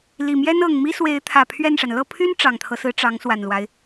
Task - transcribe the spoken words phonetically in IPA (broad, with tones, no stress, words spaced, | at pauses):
li˨˩mjɛ˥n ɤ˨˩ŋmi˥swe˧˥ɪ̯ t̪ʰä˨˩pʰɥɛ˥˩nʂa˩n lɤ˥˩pʰy˥n ʈ͡ʂɑ˨˩ŋt̪ʰɤ˦sɹ̩˧˥ ʈ͡ʂɑ˧˥ŋswa˨˩nlwa˦ɪ̯